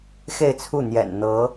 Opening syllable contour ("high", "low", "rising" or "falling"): falling